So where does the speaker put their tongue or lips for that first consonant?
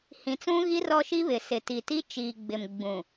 throat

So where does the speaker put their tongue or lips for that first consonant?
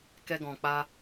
velum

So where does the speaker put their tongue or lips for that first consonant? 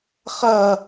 uvula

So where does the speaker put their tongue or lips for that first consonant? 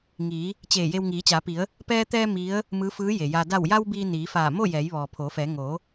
velum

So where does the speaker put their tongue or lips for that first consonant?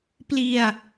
lips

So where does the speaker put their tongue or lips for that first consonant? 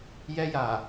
palate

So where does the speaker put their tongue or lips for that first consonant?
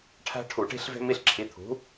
retroflex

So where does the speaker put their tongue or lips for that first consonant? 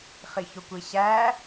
uvula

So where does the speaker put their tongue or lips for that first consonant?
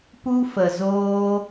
lips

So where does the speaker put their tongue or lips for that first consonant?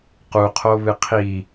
uvula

